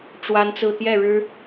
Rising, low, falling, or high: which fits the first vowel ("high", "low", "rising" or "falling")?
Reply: high